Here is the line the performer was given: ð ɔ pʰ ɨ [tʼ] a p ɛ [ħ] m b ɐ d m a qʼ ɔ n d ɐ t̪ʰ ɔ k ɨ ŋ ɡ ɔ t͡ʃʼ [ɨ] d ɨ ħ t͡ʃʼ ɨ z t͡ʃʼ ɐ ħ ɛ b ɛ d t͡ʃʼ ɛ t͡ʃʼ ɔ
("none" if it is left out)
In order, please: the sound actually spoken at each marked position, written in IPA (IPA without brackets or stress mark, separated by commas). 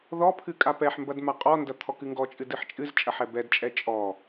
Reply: kʼ, ħ, ɨ